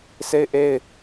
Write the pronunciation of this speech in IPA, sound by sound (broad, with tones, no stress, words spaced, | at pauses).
se˦ɪ̯ ʔe˦ɪ̯